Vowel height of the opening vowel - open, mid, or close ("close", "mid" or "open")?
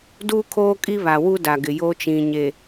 close